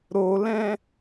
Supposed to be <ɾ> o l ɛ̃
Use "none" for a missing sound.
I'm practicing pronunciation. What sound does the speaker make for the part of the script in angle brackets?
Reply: ɾ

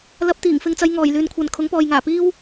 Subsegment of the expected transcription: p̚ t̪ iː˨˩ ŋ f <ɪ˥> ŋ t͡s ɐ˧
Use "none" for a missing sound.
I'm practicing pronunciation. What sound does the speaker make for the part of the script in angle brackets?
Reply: ɪ˧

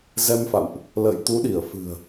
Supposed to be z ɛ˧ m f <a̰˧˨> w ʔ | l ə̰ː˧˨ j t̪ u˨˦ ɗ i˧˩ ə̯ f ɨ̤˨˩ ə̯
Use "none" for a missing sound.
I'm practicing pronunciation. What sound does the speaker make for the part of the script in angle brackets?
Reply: a̰˧˨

